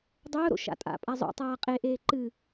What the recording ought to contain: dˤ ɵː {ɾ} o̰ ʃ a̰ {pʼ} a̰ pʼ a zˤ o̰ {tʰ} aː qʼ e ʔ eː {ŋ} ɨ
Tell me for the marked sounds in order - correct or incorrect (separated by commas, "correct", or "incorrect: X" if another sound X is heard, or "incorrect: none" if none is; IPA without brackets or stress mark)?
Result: correct, incorrect: tʼ, incorrect: tˤ, incorrect: ǃ